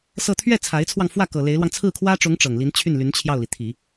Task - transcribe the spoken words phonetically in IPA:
sɤ˥˧ t̪ʰɥɛ˥˩ t͡sʰa˧˥ɪ̯t͡sʰwɑ˧ŋ fwä˥˩ kɤ˨˩le˧˥ɪ̯lwɑ˧ŋ t͡sʰɹ̩˥˩kʰwä˥ʈ͡ʂʊ˧˥ŋ ʈ͡ʂɤ˨˩ŋ li˧˥nt͡ɕʰy˥˩nly˧˥n t͡ɕʰjɑ˥˩ʊ̯li˩ t̪ʰi˨˩˦

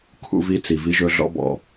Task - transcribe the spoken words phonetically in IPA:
kʰṵ˦vi˦ t͡si˨vi˦ʒɵ˦ ɮɔ̰˦bɔ̰˨

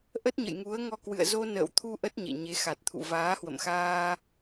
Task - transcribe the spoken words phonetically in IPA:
ʔə˦˥t̚ɲə̰˧˨jŋu˨˦ə̯ŋɔ˧ kwɨ̰˧˨ə̯zo˧nə̰ː˧˨wt̪ʰu˧ ʔə˦˥t̚ɲḛ˧˨ɲe˨˦ xa˨˩t̚t̪ʰṵ˧˨ vaː˨˦hwə̰˧˨mxaː˧

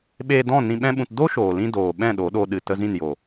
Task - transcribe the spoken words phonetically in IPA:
ɓeː˧dɔ̃˦˨ nĩ˧ɓɛ̃˦ɓũ˧t do˦ʃoː˨lĩ˧ doː˨ ɓɛ̃˦˨ɗo˨˦ɗo˧ ɗɨ˨tə˧ zĩ˦˨n jo˨

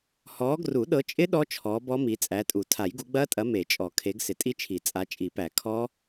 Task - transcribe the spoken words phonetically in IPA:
hɔː˨˦ɡru˨˩˦ɗɤ˨˦t͡ʃʼɪ˦˥ ɗɔ˦˥t͡ʃʰɔː˨˦ bɔ˦˥mi˨˦ t͡sʼæ˨˦tʼu˨˩˦ tʰa˨˩˦jɡu˨˦ɡ͡bɐː˦˥tʼɐ˨˦ me˨˩˦t͡ʃʼɔ˨˩˦ kʰe˨˦ɡsɪ˨˩˦tʼi˦˥t͡ʃʰi˨˩˦ t͡sʼa˨˦t͡ʃʼi˨˩˦pæ˨˩˦ kʰɔː˦˥

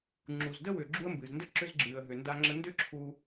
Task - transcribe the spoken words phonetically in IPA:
ŋ͡ǁu˩zdə˥ wʏː˩ɡ͡ǁu˧ə̯ mbɨː˩zndə˧˥ǁʏ˧z ɡ͡ǁɨː˩ə̯ɦʏ˩nda˧ŋ͡ǁə˧ ndʏ˥ǁʰu˧

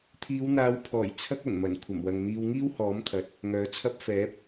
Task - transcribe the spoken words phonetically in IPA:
t̪ʰiː˨˧wn̪aː˨˧wpʰɔː˨˩j t͡sʰɐ˥k̚ɐ˨˩nmɐ˨˩n kʷʰɐ˨˩mwɐ˨ŋn̪iː˧w ŋiː˥whɔː˨˥mt̪ʰɐ˨t̚ | ŋœː˨˥t͡sʰɐ˥p̚ fɛː˨˥p̚

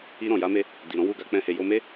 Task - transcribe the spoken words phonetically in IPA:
i˧ ɾɔ̃˨ja˨˦me˧ | di˨ɾɔ̃˨˦wu˦˨ɡa˧ k͡pɛ̃˦he˧ jo˧me˦

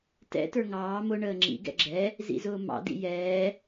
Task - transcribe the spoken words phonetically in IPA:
tɛ̰ tə˞ŋɑː mʊ ɳəːŋ͡ǁḭ ɡɛ̰ɡ͡ǁɛ | zḭzʊːmɑ̰ dḭjɛː

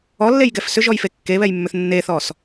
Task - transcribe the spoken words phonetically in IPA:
ɔlːejɡɛf sʏʒɔjfe kːeβɛjmːʏθ nːeθɔs

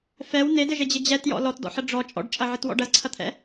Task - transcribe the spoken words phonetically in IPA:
fɛw nedɘʒed͡ʑɪ d͡ʑɛtjɔ̰ lɔtdɔ̰ħʌ ɖ͡ʐɔ t͡ʃʼɔ̰ɖt͡ʃʼɐʕɪtwɔ̰ɖ ɐzǀʰɐt̪ʰɛ̰

